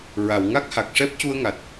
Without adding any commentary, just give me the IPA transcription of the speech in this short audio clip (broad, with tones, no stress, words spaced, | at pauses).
ɹa˨˩˨wŋa˦˥k̚ha˨˩k̚ʂɛ˦˥p̚ cu˧ə̯ŋa˨˩t̚